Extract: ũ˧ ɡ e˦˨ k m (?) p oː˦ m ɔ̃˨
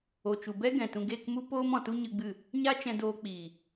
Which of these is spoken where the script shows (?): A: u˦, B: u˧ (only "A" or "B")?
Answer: A